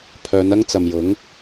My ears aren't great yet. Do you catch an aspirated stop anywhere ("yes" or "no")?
yes